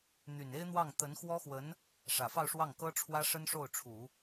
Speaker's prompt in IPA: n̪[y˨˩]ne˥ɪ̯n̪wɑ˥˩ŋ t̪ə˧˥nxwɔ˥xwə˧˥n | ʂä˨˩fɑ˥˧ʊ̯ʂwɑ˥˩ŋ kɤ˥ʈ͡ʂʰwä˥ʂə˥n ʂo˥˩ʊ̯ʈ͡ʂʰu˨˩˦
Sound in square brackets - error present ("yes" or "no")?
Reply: no